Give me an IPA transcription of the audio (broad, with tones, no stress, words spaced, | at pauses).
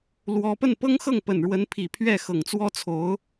lwɔ˥ pə˥˩npɤ˥ŋxɤ˥˩ŋ pə˨˩nɻwə˧˥npʰi˨˩ pʰɥɛ˥˩xɤ˨˩ŋt͡swɔ˥t͡sʰo˧˥ʊ̯